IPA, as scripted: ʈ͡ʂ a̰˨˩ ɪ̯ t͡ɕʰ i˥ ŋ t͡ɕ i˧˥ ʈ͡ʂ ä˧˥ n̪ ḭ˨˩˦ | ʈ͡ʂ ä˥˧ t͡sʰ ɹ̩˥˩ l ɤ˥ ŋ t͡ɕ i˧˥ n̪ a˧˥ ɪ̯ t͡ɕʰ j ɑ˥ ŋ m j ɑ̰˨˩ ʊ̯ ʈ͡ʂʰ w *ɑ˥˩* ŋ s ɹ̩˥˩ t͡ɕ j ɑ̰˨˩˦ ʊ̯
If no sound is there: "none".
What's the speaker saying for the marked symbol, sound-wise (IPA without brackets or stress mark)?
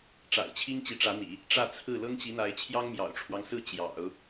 ɑ˦